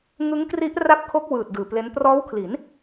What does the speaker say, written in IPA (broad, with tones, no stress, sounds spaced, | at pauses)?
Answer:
ŋ ɯ˦˥ ŋ k r i˦˥ ʔ r a˦˥ p̚ kʰ o˦˥ k̚ w ɯː˨˩ t̚ d ɯː˨˩ p l e˦˥ n p r ɔː˦˥ w kʰ l i˩˦ n